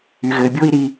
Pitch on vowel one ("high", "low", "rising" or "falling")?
low